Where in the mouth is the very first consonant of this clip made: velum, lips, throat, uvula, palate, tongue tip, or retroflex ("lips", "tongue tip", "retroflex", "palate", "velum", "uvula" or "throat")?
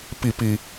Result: lips